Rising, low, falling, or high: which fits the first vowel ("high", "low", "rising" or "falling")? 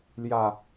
low